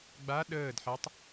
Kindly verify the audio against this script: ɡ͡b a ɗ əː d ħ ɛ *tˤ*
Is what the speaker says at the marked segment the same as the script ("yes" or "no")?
yes